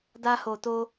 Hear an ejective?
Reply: no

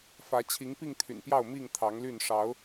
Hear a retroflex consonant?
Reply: yes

